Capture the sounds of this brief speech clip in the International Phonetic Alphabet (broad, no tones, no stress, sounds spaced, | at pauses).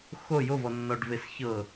x o j o v ɔ nː ɔ ɖ v e s ç ɤ